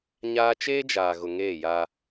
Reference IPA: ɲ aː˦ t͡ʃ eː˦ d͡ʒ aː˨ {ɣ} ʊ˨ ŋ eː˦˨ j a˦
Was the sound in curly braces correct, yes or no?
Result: yes